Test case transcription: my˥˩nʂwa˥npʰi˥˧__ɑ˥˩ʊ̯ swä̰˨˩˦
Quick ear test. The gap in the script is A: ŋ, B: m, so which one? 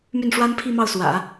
B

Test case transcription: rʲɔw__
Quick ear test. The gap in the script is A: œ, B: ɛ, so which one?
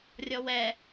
B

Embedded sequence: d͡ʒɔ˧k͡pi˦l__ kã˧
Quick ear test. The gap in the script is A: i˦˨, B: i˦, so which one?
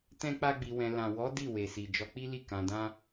A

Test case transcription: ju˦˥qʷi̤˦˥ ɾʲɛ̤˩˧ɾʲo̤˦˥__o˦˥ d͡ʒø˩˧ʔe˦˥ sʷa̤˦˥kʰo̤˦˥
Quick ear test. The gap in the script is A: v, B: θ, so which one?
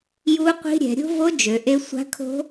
A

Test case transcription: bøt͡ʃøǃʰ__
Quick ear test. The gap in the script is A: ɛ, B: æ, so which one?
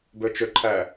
B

